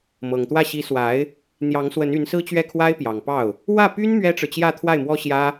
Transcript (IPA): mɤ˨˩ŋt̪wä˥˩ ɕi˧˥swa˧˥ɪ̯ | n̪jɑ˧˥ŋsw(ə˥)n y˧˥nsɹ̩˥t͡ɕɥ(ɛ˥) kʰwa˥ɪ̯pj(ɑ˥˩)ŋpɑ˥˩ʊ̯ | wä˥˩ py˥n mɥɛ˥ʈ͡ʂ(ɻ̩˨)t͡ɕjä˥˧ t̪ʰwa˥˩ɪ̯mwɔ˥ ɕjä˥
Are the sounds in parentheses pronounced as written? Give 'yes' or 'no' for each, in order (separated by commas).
no, no, no, yes